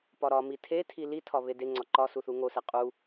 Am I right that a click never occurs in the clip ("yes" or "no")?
no